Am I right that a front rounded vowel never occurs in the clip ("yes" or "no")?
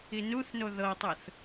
yes